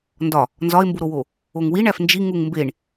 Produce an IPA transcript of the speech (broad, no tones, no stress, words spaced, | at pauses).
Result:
ndɒ | nzɒe̯mbuɾowo | oŋwiɳæf nd͡ʒi ŋuŋmbeɳ